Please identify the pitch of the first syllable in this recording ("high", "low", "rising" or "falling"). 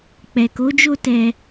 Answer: low